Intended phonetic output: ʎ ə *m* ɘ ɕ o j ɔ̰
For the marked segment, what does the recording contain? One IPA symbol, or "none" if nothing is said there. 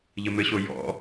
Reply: m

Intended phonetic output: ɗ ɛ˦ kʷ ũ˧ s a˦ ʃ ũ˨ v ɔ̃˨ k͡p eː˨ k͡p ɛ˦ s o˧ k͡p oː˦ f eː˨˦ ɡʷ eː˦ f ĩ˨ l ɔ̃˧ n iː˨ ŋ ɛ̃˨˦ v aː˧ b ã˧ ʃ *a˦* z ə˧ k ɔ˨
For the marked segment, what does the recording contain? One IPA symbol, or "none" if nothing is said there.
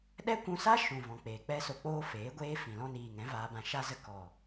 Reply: a˦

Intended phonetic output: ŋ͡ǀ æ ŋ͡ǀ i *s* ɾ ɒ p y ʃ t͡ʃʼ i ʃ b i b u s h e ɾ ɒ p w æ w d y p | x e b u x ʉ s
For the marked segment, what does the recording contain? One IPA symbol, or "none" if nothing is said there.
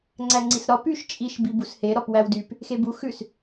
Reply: s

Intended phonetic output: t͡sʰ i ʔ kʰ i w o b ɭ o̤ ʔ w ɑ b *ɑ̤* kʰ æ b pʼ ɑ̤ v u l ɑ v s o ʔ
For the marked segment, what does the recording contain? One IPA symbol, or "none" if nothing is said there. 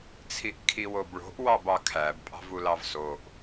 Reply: ɑ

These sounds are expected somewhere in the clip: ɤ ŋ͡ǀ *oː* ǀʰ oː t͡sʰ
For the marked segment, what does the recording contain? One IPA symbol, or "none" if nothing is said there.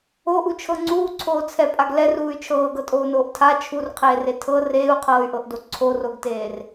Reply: uː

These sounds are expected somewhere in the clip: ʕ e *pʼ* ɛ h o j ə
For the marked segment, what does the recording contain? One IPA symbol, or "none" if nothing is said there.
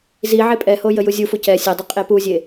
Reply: pʼ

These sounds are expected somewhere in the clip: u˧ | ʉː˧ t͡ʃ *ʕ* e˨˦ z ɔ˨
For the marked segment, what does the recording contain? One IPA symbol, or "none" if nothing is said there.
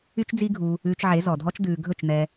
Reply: ʕ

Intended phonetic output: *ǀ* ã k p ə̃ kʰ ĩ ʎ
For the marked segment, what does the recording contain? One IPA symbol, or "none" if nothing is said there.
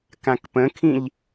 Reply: k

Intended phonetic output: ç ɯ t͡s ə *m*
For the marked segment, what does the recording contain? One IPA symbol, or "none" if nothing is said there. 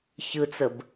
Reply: b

